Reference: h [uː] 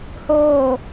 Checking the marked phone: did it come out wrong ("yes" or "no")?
yes